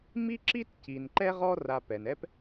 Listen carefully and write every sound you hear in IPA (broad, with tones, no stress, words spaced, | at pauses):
mi˥ǁi˥t ci˨nǃɛ˥ ʁɔ˦ ra˨pɛ˩n ɛ˦p